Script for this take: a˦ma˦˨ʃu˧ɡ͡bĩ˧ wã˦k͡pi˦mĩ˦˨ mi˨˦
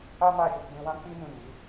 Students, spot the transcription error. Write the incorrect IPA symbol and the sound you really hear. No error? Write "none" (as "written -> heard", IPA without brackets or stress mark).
none